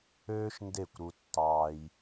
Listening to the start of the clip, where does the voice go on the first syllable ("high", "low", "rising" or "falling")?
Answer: high